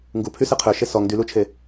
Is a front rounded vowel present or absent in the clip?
present